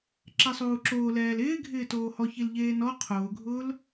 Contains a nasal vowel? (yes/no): no